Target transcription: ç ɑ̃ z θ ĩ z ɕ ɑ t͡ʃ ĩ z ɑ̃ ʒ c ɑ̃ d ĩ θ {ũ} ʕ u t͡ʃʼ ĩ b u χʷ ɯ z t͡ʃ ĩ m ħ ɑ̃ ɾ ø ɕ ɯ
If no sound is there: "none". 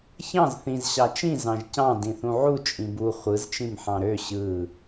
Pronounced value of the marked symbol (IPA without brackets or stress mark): ũ